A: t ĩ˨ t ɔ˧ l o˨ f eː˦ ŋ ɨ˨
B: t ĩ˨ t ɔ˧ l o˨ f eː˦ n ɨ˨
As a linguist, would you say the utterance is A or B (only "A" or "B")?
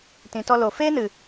B